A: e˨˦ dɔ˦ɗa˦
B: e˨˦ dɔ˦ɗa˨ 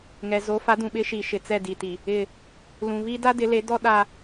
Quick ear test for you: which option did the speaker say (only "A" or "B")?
A